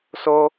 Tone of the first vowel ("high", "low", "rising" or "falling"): high